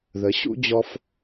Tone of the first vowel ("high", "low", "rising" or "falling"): rising